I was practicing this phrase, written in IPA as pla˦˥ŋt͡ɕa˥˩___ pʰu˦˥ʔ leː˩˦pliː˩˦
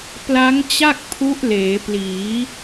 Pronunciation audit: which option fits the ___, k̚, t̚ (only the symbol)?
k̚